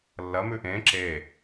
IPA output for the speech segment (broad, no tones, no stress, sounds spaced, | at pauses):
lː ɐ m ʉ ʔ ẽ ǁ e